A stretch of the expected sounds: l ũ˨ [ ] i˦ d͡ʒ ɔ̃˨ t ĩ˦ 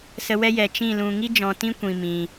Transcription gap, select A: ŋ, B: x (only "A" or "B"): A